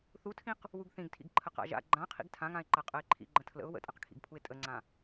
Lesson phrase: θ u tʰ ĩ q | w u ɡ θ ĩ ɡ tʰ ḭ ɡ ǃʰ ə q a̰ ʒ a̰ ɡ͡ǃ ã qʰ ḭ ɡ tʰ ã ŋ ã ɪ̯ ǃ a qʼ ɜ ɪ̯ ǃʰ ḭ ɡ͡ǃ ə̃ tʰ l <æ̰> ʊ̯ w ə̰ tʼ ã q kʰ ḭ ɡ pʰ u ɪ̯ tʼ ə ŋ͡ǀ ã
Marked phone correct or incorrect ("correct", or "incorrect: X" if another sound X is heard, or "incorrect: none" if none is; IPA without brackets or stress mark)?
incorrect: ə̰